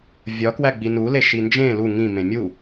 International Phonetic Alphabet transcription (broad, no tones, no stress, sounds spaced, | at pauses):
vʲ ɒ k w æ ɡ͡b i n u l e ʃ i n d͡ʒ ẽ l u ŋ ĩ m ẽ mʲ u